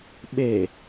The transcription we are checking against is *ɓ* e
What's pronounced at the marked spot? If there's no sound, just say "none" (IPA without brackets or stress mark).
ɓ